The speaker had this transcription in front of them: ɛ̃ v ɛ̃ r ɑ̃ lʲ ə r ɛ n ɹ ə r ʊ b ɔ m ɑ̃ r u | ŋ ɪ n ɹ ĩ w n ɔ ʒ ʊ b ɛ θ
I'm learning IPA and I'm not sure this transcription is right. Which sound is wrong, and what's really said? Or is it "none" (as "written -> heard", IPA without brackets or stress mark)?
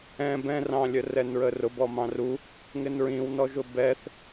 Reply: v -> b